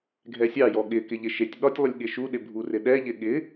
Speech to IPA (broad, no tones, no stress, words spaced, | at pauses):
ɡʱɛsʲɑjɔ ɠɪkɪ ʎɪʃetʲɓɒtʲ lˠɪlʲɠɪʃuɗɪ bʱurɪɗɛʎɪ ɠɪ